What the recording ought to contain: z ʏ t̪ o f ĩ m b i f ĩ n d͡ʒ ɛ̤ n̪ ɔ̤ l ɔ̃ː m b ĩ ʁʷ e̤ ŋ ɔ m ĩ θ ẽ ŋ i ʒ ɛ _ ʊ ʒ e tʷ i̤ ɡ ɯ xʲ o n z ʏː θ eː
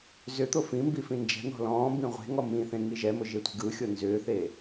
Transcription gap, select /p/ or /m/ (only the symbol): m